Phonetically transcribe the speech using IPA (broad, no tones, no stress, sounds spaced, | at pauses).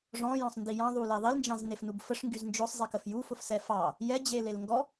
ʐ ɔ̃ j ɔ̃ sˤ n d i j ɑ̃ ðˤ u l e ðˤ i l n d͡ʒ ɑ̃ z n e f n u b f ə ʂ ŋ ɡ y z n d͡ʒ ʊ sˤ zˤ i k ə f j u f ʊ f s ɛ f ɑ | j ɛ d͡ʑ e l e l ŋ ɡ ɔ